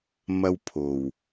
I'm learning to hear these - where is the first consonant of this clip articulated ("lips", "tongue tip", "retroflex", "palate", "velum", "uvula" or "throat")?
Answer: lips